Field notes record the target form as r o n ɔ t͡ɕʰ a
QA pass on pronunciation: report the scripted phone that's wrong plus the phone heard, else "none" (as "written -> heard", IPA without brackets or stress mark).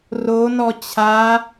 none